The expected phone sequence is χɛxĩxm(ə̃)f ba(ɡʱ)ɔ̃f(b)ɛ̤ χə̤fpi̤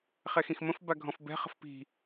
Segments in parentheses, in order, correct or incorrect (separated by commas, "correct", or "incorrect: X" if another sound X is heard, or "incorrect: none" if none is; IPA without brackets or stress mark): correct, correct, correct